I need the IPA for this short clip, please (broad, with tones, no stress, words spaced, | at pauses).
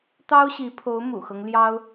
t̪ɑ˥ʊ̯ɕi˧˥pʰo˧˥ʊ̯ mṵ˨˩xɤ˦ŋ ljɑ˥ʊ̯